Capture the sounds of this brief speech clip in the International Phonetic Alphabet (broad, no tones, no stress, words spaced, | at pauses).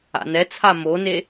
a̰nɛt͡sʰa mone